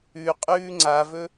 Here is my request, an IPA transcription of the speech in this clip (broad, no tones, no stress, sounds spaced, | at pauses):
ʉ qʼ ʉː ŋ͡ǀ a v ɵ